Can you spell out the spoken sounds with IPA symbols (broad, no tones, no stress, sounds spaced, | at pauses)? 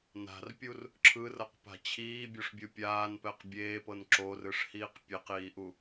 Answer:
n a̤ r pʲ u r | ǁʰ ɯ r ɤ q p a̤ t͡ɕʰ iː bʲ o ʂ bʲ ɯ pʲ aː n p ɛ q bʲ eː p ɤ n ǁ o r ɯ ʂ h iː q pʲ e q iː ʔ u